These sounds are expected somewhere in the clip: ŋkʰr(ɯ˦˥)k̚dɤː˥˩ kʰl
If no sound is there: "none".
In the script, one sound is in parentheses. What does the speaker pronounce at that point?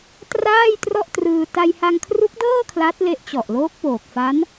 u˦˥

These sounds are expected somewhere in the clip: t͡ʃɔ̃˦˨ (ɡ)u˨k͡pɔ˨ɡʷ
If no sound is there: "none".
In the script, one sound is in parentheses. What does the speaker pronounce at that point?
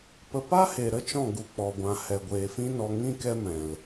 ɡ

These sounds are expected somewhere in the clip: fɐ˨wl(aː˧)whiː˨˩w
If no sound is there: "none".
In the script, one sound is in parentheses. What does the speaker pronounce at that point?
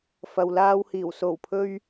aː˧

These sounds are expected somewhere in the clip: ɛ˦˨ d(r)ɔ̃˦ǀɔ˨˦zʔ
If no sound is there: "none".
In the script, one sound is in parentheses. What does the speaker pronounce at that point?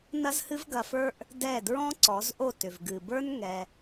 ɹ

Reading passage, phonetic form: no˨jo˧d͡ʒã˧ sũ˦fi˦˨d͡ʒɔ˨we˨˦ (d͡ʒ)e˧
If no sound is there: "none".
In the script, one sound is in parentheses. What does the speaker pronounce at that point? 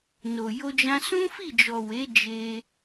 d͡ʒ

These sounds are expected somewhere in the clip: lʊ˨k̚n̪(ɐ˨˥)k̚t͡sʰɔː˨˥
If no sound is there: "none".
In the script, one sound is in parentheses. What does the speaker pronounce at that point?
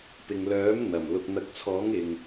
ɐ˨˥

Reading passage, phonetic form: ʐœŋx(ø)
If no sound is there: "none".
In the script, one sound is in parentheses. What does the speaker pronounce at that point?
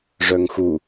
u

